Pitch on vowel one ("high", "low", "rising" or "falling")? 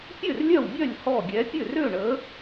falling